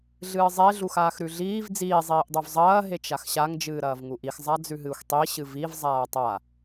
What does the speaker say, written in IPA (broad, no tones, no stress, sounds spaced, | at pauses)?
ɮ ɨː zˤ e ɮ u x aː x ɾ ʉ ɮ iː v d͡z iː zˤ iː ʔ dˤ u v zˤ ɐː ɦ e t͡ʃ a x ɕ a ŋ d͡ʒ ɨː ɾ ɐː v ŋ u ʔ i x zˤ a d͡z ʉ ɦ ɨː xʷ tˤ i ɕ ɨ v i v zˤ aː tˤ a